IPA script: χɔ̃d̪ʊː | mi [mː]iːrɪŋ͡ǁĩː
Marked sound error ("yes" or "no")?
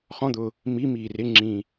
yes